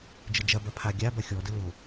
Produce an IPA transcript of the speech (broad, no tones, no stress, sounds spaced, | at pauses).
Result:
d͡ʒ ə d͡ʒ ɐ b ɐ pʰ a ɡʲ a b ɐ xʲ ɔ d ə l o